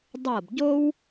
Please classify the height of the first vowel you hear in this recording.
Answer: mid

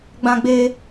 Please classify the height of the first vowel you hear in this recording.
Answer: low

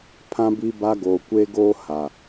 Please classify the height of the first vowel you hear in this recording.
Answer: low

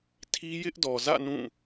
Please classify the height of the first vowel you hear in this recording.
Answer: high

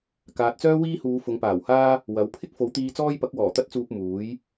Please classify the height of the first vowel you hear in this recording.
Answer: low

